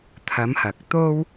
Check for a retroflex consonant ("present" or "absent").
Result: absent